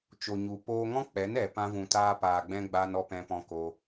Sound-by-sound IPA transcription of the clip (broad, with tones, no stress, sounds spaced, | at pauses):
t͡ʃ o˨ ɲ u˨ p oː˧ ŋ ɔ̃˦ k͡p ɛ˨˦ n ɛ˨ p ã˧ v ũ˨ t aː˧ p aː˨ ɡ͡b ɛ̃˧ ɡ͡b aː˧ n ɔ˧ p ɛ̃˧ p ɔ̃˧ k o˧